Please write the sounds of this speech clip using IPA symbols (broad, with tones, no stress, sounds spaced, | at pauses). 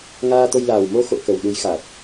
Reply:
ŋ aː˧ t̪ o˧ j l aː˨˩ w m o˧ x o̰˧˨ k ə˨˩ w ɗ u˨˦ j x a˨˩ t̚